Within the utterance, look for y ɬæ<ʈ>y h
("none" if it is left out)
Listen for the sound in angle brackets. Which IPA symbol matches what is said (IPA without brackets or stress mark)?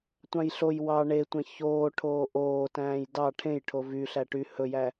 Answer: ʈ